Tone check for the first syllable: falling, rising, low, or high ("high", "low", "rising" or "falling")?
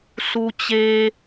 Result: low